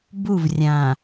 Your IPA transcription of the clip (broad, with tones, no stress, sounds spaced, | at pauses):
b u˦˨ v rʲ ã˨